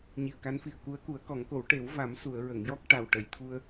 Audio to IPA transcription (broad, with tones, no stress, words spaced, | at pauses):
ɲi˨˩ə̯ka˧˥nfi˨˩ə̯ ku˧˥ə̯ku˨˩˦ə̯kɔ˨˩˦ŋko˨˩˦w ʈe˨˩˦wva˨˩˦m su˨˩˨ə̯ ɹə˨˩˨ŋjɔ˦˥k̚ ʈa˨˩wʈə˨˩˨jt̪ʰu˧ə̯